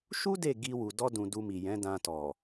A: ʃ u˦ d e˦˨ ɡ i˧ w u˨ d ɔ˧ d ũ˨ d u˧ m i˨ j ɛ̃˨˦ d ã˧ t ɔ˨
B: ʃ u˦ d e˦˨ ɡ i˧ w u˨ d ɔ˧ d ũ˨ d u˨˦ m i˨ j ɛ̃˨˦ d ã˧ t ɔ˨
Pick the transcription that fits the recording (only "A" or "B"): A